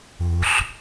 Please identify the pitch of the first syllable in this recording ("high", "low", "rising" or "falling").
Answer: low